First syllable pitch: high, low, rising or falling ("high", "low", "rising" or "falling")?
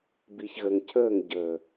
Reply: low